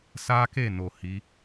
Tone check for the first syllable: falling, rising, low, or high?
high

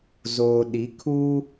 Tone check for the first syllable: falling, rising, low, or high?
low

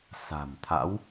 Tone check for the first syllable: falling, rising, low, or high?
low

